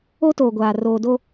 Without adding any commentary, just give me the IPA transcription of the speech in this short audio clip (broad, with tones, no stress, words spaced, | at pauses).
o˦toː˨ ɡʷaː˨ roː˨do˦